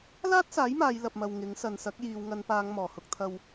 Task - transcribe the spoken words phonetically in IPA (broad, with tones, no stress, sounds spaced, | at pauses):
l aː˥ t̚ s aː˨˥ j m aː˨˧ j l ɐ˨ p̚ m ɐ˨ w ŋ ɪ˨˥ ŋ s ɐ˨ n s ɐ˨˥ k̚ j iː˨ w ŋ ɐ˨˧ n p aː˨˧ ŋ m ɔː˨˩ h ʊ˧ k̚ t̪ʰ ɐ˧ w